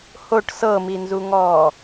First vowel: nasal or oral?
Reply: oral